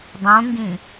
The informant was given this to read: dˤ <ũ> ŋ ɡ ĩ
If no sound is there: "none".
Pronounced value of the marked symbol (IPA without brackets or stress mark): ũ